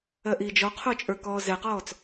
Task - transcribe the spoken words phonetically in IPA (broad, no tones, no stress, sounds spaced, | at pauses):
ɜ ʔ iː d͡ʒ ɔ qʰ o t͡ʃʼ ə˞ k ɔː z ɛ q ɔː t͡s